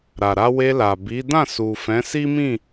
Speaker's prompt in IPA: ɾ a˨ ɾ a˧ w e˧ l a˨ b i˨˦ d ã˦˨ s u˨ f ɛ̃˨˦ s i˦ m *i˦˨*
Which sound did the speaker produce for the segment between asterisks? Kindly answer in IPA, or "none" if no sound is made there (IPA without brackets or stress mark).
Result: ĩ˦˨